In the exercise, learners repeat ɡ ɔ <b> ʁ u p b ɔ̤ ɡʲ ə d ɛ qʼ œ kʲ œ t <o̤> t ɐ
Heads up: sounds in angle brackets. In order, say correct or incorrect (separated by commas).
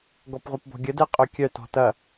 incorrect, incorrect